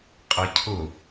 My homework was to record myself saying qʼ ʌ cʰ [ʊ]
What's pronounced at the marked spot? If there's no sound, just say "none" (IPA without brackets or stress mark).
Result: ʊ